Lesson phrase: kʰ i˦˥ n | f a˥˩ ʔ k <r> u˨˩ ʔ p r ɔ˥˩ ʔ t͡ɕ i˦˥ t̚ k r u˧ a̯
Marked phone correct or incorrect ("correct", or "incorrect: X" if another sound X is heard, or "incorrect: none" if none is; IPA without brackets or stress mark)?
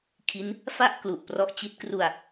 incorrect: l